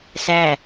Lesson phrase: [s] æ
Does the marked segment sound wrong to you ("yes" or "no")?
no